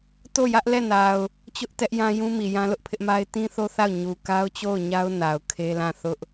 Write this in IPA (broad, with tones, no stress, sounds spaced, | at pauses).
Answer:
t o˦˨ j ä˦ ʔ l ɛ˦˨ n a˨ ʊ̯ | t͡ɕ ʊ˦ ʔ t ɛ˦ ʔ j ã˦ j ũ˦ m i˨ j ã˦ l ʊ˦ ʔ pʰ ɪ˦ ʔ m a˦ ɪ̯ t ĩ˦ θ o˦ θ a˦˨ ʊ̯ ɲ u˨ k a˦ ʊ̯ t͡ɕ o˦˨ ʊ̯ ɲ a˦ ʊ̯ n a˨ ʊ̯ kʰ e˦ l ã˦˨ θ ʊ˦ ʔ